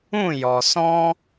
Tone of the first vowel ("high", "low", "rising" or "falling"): falling